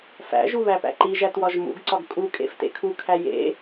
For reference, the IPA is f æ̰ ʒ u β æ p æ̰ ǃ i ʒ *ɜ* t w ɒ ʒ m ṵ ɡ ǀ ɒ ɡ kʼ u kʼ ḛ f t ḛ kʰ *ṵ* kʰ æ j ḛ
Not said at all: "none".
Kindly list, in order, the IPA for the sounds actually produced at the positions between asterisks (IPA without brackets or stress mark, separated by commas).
æ, u